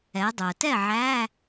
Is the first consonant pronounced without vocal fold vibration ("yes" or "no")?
no